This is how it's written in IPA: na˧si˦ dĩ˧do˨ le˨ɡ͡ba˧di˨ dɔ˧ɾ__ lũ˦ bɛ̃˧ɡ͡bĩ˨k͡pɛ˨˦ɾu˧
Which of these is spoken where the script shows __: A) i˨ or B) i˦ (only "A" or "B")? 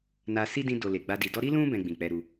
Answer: B